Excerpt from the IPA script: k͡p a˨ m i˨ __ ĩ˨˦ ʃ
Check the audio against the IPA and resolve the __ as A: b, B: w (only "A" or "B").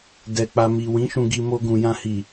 B